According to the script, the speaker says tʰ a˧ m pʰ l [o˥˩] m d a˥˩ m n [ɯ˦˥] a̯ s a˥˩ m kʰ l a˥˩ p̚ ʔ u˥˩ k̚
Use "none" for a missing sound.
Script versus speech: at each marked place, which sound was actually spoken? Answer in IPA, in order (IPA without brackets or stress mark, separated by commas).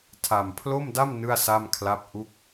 o˥˩, ɯ˥˩